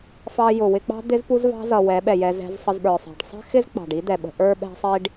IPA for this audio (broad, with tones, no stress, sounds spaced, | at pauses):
f ɑ˧ j ʊ˨ w ɪ˧ k͡p ɑ̤˦ d̪ ɪ˦ z p u˦ z v ɑ̤˦ z ʌ˨ w ɛ˨˦ ɓ ɛ˨ j ɛ˧ z ɛ̤˧ z sˤ ə˧ z ɓ ə˞˨ sˤ ɛ̤˨ ɖ sˤ ɛ̤˦ x ɪ˦ z k͡p ɑ̤˨ ɖ i˦ d̪ ɛ˨ ɓ ə̤˧ ʔ ə˞˦ ɓ ɛ̤˧ sˤ i˧ ɖ